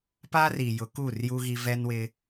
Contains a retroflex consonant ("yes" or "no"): no